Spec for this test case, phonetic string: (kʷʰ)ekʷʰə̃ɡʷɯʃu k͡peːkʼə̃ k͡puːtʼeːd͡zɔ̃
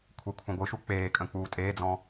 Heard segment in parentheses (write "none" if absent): kʷʰ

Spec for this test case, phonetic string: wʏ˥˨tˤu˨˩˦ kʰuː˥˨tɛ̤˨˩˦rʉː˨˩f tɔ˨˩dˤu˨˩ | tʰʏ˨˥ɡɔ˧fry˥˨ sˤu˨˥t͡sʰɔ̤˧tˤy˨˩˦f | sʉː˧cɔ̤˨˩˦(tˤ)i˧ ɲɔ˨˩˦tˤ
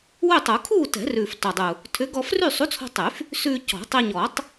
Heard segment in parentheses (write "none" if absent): tˤ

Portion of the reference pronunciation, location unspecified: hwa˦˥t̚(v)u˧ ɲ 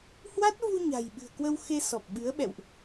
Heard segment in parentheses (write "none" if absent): v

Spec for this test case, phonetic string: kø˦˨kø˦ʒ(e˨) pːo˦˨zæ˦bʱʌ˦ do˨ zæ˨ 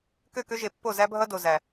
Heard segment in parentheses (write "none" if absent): e˨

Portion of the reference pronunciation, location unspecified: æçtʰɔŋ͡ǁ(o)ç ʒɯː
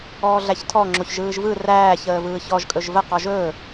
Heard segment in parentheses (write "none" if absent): o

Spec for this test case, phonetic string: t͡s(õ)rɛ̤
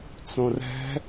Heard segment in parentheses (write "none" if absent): õ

